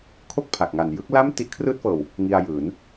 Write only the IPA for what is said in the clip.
kʰo˥˩k̚pʰa˨˩k̚ŋa˨˩njɯ˦˥k̚ la˥˩m ti˦˥ʔkʰrɯː˥˩t̚fɤː˧w | ŋi˧a̯jɯː˩˦n

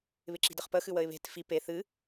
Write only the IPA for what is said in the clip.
βɪǁi̤dəχpə xɨwəɪ̯βe̤t fi pe θɨ

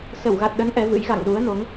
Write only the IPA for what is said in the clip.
sə˧˩wɣa˨˩t̚ɗə˨˦n ʔɛ˨˦vɨ̰˧˥j ɣa̰˧˨ŋ ɗu˨˦ə̯no˨˦ŋ

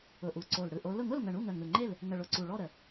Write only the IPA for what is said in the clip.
ʊ˨˩ʔu˨˩ǀo˨˩l ɽɯ˨˩ʔo˨˦lʊ˥˨ ŋʊ˥˨lŋə˨˩ɳu˥˨ ŋə˨˩ŋɯ˨˩ŋ͡ǃe˥˨l | ŋə˨˩ɭʊ˨˩ ǀu˨˩ɭɔ˥˨ɾə˨˩˦

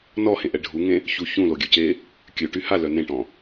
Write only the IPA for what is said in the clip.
nɔhẽʔɛ ɖʱuŋẽ | çu çũloɡʲøce | kʲøʈy halœ nẽʈɔ̃

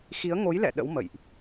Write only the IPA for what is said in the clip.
xi˨˦ə̯ ŋo˨˦jlɛ̰˧˨ ɗə̰˧˥w mə̰˧˨jʔ

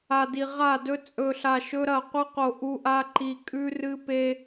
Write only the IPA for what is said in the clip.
a˨di˨ ʁa˦˨dɵ˦ t͡sʼɵ˨ɬa˨ ʃɵ˦ɾɐ˦˨ qʷɨ˦qo˨ ʔu˦ʔa˦ ǃi˨kʼʉ˦rɨ˦pe˦

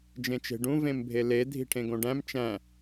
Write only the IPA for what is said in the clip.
d͡ʒẽt͡ʃe̤ɖũ vẽmbʱele dʱi̤ʈʰẽɡõɖæ̃m t͡ʃæ̃

